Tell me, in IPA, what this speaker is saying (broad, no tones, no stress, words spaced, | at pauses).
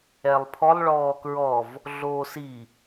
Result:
ɛlˠpʰɔlˠ ɭɔːkɹɔv | ɮoːsi